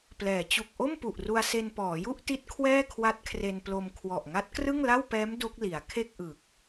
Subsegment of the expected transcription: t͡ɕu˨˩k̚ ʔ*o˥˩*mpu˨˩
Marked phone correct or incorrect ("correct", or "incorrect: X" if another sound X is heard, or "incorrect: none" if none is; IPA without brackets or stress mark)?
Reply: correct